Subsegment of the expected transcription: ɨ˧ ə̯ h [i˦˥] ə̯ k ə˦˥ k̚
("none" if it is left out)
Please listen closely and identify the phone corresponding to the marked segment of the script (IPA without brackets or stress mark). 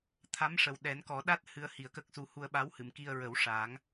i˨˩